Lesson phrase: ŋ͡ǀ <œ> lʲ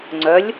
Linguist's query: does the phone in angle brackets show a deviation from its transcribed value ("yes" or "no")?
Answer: no